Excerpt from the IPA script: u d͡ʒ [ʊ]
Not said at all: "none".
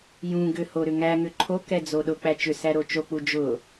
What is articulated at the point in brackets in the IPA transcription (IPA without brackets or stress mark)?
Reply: ʊ